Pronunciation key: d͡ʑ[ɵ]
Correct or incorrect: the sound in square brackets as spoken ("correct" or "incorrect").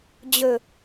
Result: correct